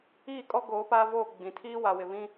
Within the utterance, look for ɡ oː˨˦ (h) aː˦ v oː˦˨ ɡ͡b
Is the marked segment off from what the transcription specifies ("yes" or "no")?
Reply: yes